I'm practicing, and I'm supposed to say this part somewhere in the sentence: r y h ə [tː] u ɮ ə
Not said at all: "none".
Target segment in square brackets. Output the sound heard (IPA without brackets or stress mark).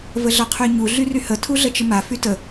tʰ